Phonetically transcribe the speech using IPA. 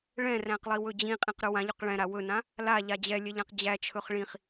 ɭ ɛ̃ r æ̃ q lˠ i w ɵ d͡ʑ ĩ qʼ ĩ q ɾ ɵ w ã ʎ ɵ q ɭ ɛ̃ ɾ a w ɵ n ã | l a ʎ a d͡ʑ ɛ lʲ ɛ ʎ ã q d͡ʑ æ t͡ʃʰ ɵ χ ɭ ĩ χ

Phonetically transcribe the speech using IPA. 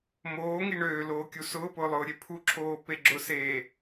m oː ŋ i ɳ øː l oː kʲ u s ʊː p ʊː lˠ ʊː ɾʲ e pʰ u ǁʰ oː p e ɡ͡ǁ ʊ s eː

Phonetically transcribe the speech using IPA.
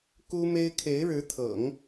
k u˥ m e˥ ɪ̯ kʰ e˧˥ ɪ̯ ɻ ɻ̩˧˥ t̪ʰ ɤ̰˨˩˦ ŋ

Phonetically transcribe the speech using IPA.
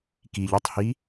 k i ʎ ø tˤ h i

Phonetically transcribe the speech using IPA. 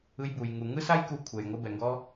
ɯ˧ j b u˩ j ŋ u˩ ŋ ɯ˥ s a˥ j k u˧ kʷʰ ɛ˩ j ŋʷ ɯ˧ b ɛ˩ ŋ ɡ ɔ˧

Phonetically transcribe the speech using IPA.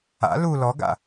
a̰ l u l ɔ ɡ a̰

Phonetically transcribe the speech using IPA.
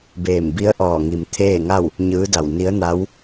b eː˧˩ m b i˧˥ ə̯ ʔ ɔː˧˩ ŋ i˩ m t̪ʰ eː˥˨ ŋ a˥˨ w | ɲ ɯː˧˥ d a˧˩ w n i˧˥ ə̯ n a˧˥ w

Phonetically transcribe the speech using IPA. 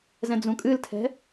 z ɛ̃ d͡z ũ kʼ ɨ l tʰ ɛ̤

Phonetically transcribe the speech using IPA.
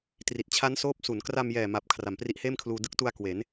t r i˨˩ t̚ t͡ɕʰ a˦˥ n s oː˦˥ p̚ s u˩˦ n k r a˧ m j ɛː˨˩ m a˨˩ p̚ kʰ r a˩˦ m p r i˦˥ ʔ h eː˥˩ m kʰ l uː˧ d ɯ˦˥ k̚ t u˧ a̯ k w e˩˦ n

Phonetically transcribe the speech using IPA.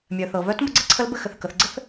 mʲ œ˩ θ ɤ˩ β œ˧˥ t m ə˧ ɡ͡ǀ ə˥ ǀʰ ə˧˥ l b ɘ˧ x ɘ˩ θ k ə˩˧ θ ɡ͡ǀ ɘ˥ θ

